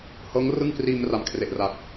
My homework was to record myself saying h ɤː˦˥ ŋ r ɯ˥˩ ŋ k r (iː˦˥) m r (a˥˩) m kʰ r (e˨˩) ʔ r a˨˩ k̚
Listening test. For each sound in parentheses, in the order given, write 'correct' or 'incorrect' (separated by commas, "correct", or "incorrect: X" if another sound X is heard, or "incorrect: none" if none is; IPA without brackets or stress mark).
incorrect: iː˧, incorrect: a˨˩, correct